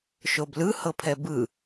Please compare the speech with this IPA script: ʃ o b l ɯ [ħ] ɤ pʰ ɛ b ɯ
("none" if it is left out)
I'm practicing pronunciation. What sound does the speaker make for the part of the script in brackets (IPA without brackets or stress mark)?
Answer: h